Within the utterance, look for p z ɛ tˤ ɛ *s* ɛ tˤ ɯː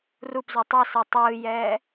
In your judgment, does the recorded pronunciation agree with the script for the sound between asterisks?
yes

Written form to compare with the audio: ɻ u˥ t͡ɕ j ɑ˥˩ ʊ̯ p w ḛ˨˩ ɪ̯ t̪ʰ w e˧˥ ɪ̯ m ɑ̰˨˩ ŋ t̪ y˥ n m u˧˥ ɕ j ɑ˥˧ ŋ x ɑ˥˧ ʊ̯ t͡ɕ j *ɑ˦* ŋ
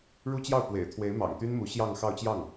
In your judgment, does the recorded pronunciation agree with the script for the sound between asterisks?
no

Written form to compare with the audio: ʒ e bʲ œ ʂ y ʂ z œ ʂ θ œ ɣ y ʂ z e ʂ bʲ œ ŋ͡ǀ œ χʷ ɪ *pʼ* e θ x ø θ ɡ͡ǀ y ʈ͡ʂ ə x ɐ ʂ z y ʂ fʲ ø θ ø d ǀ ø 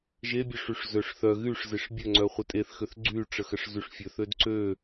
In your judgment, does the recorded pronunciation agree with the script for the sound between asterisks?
no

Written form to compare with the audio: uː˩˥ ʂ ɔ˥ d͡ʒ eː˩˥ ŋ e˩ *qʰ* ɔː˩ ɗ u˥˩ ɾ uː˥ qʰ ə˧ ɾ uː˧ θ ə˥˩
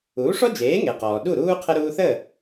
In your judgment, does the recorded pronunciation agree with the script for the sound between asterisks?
no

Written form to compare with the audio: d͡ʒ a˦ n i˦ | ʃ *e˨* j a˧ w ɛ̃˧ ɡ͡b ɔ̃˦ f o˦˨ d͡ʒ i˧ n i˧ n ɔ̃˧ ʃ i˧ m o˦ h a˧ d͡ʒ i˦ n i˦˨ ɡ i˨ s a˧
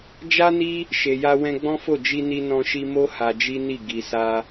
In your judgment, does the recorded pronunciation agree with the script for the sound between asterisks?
yes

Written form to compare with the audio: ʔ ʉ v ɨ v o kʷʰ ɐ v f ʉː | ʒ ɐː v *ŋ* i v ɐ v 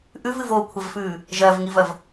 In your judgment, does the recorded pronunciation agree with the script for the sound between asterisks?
yes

